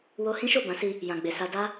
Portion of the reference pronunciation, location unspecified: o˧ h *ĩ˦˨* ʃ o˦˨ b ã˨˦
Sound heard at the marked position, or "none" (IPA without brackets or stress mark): ĩ˦